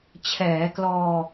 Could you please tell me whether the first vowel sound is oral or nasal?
oral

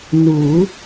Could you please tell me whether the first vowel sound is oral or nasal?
oral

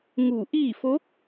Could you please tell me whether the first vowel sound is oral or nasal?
oral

